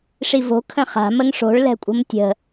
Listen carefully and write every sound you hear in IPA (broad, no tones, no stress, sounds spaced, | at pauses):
ʂ i v o̤ kʰ ə̃ χ a̤ m ə ŋ ʂ o̤ ɭ l ɛ̤ kʷʼ ə̤ m tʲ ə̤